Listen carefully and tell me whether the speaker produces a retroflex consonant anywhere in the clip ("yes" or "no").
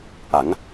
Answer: no